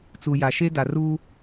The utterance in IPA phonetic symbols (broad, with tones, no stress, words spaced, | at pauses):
t͡su˨ja˨ ʃe˦ da˨ ruː˦